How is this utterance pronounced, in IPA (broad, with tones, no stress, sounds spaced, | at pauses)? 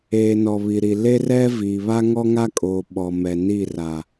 eː˨ n ɔ˨ β i˨ ɾ i˨ l e˦ r ɛ˦ v iː˨ β a˦ ŋ ɔ˦ ŋ a˦ kʼ oː˨ ɓ ɔ˨ m ɛ˨ n i˦˨ r a˨